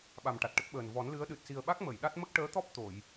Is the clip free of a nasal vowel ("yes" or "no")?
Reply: yes